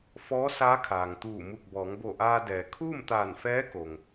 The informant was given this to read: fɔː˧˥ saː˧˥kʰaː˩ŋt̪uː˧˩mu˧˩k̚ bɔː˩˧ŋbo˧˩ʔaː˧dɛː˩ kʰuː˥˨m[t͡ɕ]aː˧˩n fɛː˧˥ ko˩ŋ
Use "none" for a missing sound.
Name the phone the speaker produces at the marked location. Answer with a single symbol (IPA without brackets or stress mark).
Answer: t̪